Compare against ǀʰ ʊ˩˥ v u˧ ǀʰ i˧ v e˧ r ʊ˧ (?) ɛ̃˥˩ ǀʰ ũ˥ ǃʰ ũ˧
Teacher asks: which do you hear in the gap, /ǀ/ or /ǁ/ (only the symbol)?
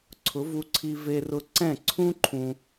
ǀ